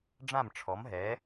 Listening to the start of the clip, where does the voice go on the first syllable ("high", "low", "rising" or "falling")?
falling